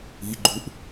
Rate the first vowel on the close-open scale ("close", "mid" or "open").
close